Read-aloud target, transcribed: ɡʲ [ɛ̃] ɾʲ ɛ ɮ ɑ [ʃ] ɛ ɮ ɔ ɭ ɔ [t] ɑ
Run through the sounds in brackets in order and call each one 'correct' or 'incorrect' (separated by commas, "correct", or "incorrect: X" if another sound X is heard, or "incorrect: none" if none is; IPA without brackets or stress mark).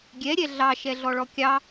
incorrect: ɛ, correct, incorrect: kʲ